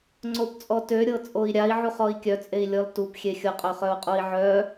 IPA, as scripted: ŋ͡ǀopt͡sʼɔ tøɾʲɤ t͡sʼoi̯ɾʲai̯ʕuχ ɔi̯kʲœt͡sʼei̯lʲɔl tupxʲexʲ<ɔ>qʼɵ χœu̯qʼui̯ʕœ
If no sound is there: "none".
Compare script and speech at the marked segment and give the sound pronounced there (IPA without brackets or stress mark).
ɤ